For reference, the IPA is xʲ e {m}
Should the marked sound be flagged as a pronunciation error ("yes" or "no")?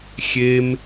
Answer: no